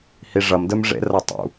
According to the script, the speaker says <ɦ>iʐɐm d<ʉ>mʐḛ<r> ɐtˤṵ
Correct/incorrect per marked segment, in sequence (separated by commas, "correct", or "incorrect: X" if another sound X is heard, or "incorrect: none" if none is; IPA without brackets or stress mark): incorrect: h, incorrect: ɘ, correct